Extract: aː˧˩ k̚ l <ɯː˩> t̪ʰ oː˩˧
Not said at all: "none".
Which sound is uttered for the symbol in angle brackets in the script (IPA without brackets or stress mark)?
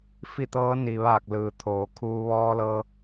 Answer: ɯː˩